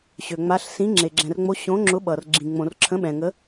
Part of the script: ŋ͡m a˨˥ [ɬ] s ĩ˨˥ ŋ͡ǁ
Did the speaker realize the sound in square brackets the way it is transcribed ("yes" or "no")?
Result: yes